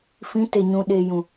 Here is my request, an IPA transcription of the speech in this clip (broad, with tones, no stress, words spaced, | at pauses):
fĩ˨˦te˨ɲũ˨ ɗeː˨ jũ˨